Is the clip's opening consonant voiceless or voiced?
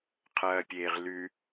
voiceless